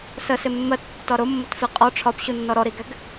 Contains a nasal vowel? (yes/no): no